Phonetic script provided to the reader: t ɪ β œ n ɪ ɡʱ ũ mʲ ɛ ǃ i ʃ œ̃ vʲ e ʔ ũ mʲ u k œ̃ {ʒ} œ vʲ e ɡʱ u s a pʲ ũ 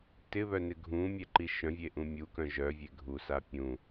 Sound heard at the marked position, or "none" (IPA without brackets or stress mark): ʒ